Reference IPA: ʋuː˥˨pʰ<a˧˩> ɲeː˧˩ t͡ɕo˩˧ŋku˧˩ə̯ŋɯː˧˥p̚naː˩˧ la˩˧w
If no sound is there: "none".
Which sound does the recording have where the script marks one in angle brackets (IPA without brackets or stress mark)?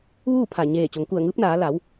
a˧˩